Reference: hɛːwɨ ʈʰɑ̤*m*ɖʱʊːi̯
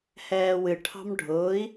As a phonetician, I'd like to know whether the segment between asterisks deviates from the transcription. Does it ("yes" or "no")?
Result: no